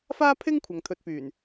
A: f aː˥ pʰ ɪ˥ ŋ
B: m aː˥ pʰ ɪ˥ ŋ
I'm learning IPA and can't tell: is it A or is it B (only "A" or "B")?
A